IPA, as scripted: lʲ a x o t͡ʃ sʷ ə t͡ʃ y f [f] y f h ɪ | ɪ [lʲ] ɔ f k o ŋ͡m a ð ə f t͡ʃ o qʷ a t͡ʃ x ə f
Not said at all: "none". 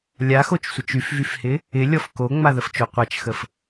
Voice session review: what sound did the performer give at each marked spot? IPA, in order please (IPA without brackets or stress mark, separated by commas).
v, lʲ